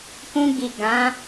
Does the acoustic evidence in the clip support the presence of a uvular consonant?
no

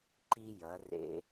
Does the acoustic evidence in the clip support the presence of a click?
yes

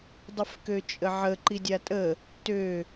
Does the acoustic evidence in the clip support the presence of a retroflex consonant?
no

